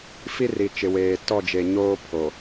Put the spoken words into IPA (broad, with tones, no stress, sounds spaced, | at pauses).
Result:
f i˦ r i˨ t͡ʃ ɪ˨ w eː˨ t ɔ˦˨ d͡ʒ e˨ ɲ oː˦ pʰ o˨